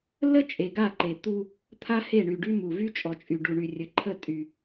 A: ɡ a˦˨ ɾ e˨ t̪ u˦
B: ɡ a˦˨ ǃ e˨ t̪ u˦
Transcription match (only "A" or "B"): B